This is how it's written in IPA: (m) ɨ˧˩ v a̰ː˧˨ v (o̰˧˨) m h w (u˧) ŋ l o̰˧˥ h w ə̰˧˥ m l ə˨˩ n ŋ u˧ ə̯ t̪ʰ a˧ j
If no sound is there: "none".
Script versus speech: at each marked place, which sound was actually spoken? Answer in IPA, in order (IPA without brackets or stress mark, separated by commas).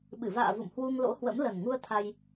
ɓ, ṵ˧˨, u˧